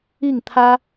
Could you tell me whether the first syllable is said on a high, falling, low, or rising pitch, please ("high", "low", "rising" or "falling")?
falling